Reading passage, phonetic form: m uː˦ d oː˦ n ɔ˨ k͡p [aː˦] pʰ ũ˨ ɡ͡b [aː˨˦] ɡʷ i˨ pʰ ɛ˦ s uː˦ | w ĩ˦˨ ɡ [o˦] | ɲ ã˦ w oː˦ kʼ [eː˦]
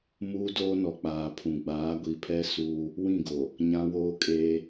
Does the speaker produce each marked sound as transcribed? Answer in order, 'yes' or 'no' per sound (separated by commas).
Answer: no, yes, no, yes